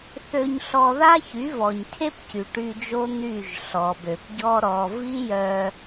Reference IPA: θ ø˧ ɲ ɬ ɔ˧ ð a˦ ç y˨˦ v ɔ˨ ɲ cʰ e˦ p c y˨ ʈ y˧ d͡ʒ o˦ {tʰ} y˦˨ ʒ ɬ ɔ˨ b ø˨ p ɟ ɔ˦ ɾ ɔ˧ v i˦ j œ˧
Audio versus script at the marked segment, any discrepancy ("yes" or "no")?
yes